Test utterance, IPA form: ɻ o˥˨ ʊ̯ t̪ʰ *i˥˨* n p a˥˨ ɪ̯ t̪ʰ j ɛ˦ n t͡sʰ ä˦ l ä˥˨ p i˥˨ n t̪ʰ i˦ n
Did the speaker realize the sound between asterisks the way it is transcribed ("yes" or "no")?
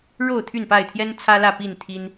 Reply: no